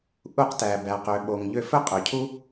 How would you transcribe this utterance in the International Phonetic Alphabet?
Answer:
ʔ u˧ q t æ˩ b æ˩ q ø˩ ɓ o˩ ŋ ʎ ø˧ f ɵ˥ qʼ ø˩ cʰ u˥

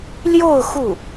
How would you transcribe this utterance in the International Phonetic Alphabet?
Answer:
l j o˥˧ ʊ̯ x u˥˩

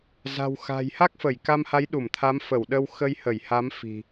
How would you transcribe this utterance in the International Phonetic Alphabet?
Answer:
z a̤˨˩ w x a̤˨˩ j h a˦˥ k̚ f ə˧˩ j k a˧ m h a˨˦ j ɗ u˧˩ m t̪ʰ a˨˦ m f ə˧˩ w ɗ ə˧ w x ə˧ j h ə˧˩ j h a˨˦ m f i̤˨˩

